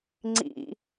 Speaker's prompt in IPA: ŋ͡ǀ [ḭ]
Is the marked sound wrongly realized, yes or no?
no